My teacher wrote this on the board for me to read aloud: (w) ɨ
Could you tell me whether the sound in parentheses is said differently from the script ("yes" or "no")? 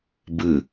yes